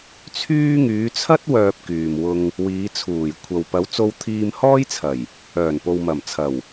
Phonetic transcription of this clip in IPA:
t͡sʰyː˥ ŋyː˨˧t͡sʰɐ˥t̚ wœː˧p̚kyː˨mwʊ˧ŋ | wiː˨˧t͡sʰuː˨˩j kʷʰɐ˨wpɐ˨˧w t͡so˧w t̪ʰiː˧mhɔː˥jt͡sʰɐ˨˩j | œː˨˩npo˨w mɐ˨˩mt͡sʰɐ˨˩w

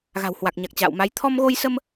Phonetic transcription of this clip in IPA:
ɣa̤˨˩whwa˨˩k̚ ɲa˨˩k̚ t͡ɕa̰ː˧˨wma˨˦j t̪ʰɔ˧mɣo˧jsə˧m

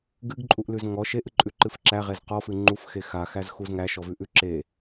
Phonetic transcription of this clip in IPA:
ɡɨɡǃʼuʔlʉz ŋɔʃ eʔɨǃʼʉǃɨf ǁæʁez qɔfɨ ŋ͡ǃufxe xaxæzxuz ŋæʃɔvʉʔʉ ǁe

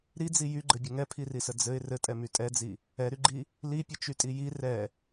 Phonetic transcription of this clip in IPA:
ɾid͡zi jyɡ͡ǃɘbʲɘ ŋɛpʰirisə d͡zɘɪ̯ rɘtʼɛmy tʼɛd͡zi | ɛɾyɡ͡ǃi | lipʲət͡ʃytʼi ji rɛ

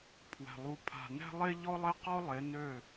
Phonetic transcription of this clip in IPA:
pʰwɛ̤˨ lˠu˨pʰa̤˨nɛ̤˦lˠe˦ ʎɔ˦lˠɛ˦qɔ˦ lˠe˨˦ nø˦˨

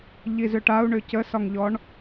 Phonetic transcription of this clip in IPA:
ʎizʏʈau̯ ɳʏcəsɒŋʎɔɳ

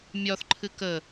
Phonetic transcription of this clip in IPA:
mʲɒθǃʰɨ kə

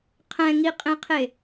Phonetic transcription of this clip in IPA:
qʰɛ̃ŋiqʼẽqʰe

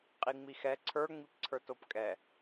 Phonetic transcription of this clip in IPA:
qʼiŋ͡mixɛ ǀʰə˞ŋ͡mipǀʰə˞t opkʼɛ

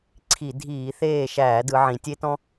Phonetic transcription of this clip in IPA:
ǀʰi˧˩˧ dʱiː˧˩˧θeː˦˨ ʃæː˧˩˧dɯ˩˧ ʕĩ˩˧tʲe˦tɔ̃˦

